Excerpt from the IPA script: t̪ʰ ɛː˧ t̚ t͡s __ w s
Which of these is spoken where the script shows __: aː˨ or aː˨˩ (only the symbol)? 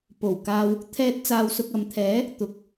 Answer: aː˨